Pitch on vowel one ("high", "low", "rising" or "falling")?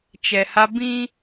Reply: low